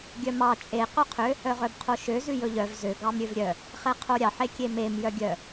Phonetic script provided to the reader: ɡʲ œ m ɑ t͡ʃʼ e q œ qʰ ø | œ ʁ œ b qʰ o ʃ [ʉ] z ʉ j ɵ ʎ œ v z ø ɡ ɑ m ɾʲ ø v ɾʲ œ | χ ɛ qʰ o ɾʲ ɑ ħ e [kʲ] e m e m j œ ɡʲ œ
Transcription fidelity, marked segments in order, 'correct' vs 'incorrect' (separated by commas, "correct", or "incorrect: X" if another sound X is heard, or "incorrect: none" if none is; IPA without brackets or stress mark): incorrect: ø, correct